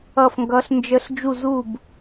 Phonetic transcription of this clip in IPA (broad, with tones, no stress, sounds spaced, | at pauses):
ʌ˥˩ f ŋ ɡ ʌ˧˥ ɬ n d͡ʒ ə˧˥ ɬ d͡ʒ u˥˩ z u˥˩ b